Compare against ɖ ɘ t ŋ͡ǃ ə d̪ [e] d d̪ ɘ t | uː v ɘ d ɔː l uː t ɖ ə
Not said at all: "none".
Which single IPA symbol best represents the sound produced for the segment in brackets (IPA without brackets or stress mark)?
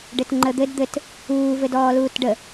ɘ